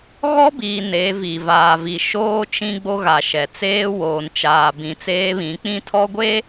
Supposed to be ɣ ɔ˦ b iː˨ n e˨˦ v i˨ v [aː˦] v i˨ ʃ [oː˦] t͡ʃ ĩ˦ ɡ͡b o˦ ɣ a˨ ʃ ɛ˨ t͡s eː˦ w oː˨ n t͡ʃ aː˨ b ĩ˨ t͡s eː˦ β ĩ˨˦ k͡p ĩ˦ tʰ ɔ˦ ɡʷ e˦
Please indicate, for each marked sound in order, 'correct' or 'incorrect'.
incorrect: aː˨, correct

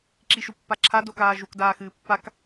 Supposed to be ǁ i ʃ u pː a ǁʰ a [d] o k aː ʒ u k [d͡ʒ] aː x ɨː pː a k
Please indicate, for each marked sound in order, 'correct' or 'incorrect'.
correct, incorrect: d

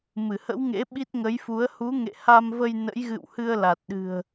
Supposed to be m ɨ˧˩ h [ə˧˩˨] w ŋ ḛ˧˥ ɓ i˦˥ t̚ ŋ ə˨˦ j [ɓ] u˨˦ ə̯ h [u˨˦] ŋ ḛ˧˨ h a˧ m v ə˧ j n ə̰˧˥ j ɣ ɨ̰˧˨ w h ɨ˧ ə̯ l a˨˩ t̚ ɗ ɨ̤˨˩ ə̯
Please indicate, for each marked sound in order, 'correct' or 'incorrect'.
incorrect: ə̰˧˥, incorrect: f, correct

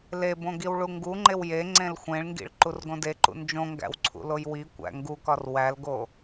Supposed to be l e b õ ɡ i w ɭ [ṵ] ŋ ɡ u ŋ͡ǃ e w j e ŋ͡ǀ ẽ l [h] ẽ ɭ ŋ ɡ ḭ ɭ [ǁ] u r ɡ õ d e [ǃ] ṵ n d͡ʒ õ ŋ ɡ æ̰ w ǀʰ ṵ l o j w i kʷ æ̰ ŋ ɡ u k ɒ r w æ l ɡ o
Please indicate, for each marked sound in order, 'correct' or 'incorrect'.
incorrect: u, incorrect: xʷ, incorrect: ǃ, correct

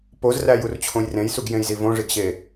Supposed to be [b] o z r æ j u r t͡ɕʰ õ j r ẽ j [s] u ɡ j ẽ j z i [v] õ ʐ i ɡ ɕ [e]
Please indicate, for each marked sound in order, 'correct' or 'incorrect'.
incorrect: p, correct, correct, correct

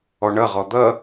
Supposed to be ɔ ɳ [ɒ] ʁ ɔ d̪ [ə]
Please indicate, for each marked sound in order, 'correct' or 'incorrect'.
incorrect: ʌ, incorrect: ʌ

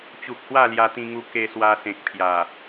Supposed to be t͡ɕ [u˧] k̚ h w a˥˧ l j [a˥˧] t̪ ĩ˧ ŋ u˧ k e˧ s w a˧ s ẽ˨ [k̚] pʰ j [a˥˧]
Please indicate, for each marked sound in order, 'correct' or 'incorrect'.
incorrect: u˨, incorrect: a˧, correct, incorrect: a˨˩

